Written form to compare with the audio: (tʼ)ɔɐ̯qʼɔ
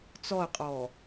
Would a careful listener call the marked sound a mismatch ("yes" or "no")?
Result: yes